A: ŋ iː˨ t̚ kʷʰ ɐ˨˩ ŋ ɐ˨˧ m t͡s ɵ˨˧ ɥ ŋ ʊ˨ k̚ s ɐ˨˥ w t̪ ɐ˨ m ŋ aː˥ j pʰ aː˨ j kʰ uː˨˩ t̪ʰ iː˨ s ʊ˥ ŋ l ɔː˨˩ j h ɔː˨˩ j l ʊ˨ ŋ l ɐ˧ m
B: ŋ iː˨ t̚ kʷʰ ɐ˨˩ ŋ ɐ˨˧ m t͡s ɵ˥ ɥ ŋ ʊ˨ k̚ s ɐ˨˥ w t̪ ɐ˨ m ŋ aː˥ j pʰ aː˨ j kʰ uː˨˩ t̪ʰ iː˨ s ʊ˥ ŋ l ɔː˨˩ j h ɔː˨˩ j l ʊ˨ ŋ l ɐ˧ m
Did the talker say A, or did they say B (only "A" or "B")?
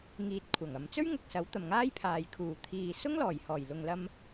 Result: B